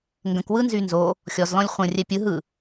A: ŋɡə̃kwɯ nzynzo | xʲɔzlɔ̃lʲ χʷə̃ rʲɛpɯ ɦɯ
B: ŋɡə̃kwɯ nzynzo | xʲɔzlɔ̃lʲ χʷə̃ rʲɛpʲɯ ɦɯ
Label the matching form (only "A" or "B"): B